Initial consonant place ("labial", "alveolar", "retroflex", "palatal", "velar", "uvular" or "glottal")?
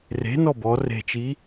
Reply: alveolar